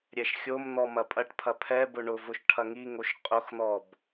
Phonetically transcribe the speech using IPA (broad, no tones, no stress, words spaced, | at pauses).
ɾʲɛʃxʲomn̪ɔ mɐpʼɐʈpʰɐ pʰɛbʊ ɳʊvʊʃ ʈʰɐŋiŋoʃ qʼʊxn̪ɔb